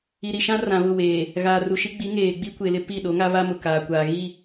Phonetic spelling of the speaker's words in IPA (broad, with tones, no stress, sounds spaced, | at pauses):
i˨ ɾ i˨ ʃ ã˦ r ã˨ β ʊ˦˨ w eː˨ | ɣ aː˨ r u˨ ʃ i˦ ɡ͡b i˨˦ ŋ eː˨ ɡ͡b i˦ kʷ e˨ l ɪ˦ p i˦˨ ɗ o˨˦ ŋ a˦ β a˦ m ʊ˨ k aː˨ kʷ aː˨ ɣ i˦˨